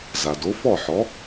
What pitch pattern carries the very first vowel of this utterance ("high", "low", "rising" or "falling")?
low